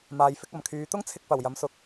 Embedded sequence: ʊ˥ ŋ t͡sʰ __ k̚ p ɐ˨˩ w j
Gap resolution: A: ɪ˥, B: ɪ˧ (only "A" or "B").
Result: B